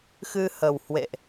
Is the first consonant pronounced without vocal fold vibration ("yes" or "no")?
yes